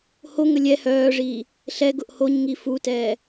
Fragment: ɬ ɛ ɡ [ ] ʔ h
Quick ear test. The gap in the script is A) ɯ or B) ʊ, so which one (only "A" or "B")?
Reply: B